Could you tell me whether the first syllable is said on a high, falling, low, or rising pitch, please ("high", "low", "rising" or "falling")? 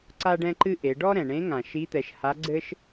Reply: high